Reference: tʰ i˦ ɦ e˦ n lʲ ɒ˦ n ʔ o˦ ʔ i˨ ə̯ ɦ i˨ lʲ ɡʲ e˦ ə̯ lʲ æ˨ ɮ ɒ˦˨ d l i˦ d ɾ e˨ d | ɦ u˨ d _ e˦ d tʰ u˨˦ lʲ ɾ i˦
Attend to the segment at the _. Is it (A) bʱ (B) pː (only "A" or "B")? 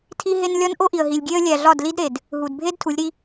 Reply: A